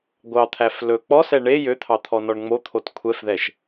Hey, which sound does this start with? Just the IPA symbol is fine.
ɡʷ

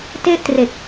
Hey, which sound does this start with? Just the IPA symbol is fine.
t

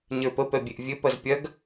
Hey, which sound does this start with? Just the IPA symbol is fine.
ɲ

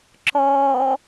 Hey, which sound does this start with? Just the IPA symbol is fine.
ǁ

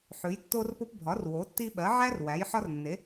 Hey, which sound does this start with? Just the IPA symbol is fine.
ħ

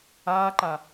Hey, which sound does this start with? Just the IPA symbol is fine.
aː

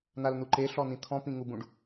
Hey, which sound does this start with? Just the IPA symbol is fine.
n̪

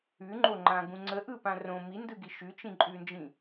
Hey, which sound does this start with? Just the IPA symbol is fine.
ʉ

